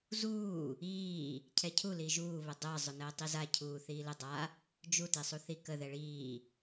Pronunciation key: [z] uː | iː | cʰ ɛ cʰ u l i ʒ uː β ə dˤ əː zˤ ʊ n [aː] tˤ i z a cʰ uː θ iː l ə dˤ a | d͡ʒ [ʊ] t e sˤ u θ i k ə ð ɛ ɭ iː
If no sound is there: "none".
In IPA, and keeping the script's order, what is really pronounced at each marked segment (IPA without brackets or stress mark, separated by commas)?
z, əː, u